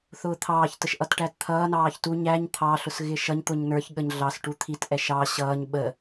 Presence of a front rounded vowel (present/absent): absent